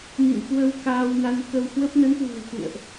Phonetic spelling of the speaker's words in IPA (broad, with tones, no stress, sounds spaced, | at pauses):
n ḭ˧˨ n k w ə˧ w k aː˧ w n a˧ n k ə˧ w h w ə˦˥ p̚ n ə˨˦ n k w ṳ˨˩ ə̯ k ṵ˧˨ ə̯ ʔ